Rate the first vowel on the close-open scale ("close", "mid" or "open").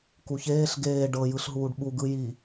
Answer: close